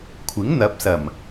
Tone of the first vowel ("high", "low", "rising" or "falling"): rising